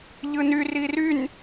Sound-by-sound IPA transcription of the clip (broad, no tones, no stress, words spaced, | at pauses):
ʎɯny riryn